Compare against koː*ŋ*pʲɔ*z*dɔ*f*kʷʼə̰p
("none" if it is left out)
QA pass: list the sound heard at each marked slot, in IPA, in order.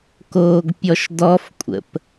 ɡ, ʃ, f

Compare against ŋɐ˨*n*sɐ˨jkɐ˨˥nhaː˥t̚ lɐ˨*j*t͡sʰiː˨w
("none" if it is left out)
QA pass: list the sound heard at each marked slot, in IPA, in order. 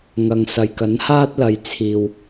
ŋ, j

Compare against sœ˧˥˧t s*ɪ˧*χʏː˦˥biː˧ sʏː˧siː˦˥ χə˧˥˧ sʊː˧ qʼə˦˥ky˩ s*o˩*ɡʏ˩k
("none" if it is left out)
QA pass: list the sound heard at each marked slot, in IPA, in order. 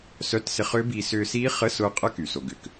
ɪ˧, o˩

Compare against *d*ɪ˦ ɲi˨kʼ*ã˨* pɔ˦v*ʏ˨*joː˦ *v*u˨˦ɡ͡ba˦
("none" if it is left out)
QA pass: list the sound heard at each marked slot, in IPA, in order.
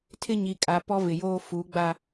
tʰ, a˨, ɪ˨, f

